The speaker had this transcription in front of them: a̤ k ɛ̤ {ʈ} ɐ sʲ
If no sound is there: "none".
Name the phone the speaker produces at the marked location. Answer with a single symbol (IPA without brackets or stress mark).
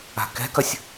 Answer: k